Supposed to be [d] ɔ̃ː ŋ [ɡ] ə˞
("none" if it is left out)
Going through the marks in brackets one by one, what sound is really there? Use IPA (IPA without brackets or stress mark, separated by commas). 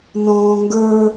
n, ɡ